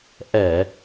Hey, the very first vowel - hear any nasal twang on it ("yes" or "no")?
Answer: no